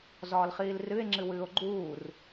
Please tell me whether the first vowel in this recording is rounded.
yes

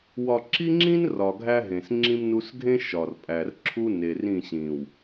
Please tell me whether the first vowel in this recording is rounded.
yes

